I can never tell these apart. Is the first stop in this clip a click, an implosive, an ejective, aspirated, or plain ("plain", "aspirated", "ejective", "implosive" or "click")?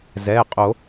ejective